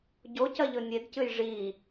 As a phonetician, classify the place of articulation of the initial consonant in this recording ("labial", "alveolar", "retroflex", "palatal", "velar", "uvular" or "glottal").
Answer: palatal